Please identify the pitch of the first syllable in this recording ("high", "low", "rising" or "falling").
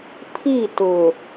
falling